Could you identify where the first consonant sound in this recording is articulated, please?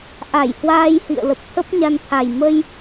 glottal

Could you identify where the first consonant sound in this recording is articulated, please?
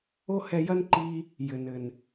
glottal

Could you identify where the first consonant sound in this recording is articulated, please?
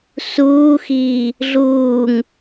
alveolar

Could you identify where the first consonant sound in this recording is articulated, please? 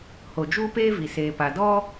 glottal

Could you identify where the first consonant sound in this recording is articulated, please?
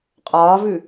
uvular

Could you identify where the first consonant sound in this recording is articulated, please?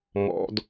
labial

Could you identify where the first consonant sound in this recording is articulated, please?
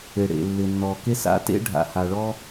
retroflex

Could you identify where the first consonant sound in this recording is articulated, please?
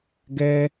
velar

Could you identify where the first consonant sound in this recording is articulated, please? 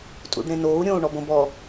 alveolar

